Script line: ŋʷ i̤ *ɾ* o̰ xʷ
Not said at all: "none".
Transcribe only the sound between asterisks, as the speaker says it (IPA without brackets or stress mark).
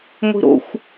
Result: ɾ